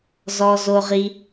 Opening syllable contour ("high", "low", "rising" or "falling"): high